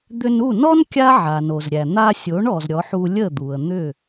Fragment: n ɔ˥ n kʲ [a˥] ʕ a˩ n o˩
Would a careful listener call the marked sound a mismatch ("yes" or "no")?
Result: no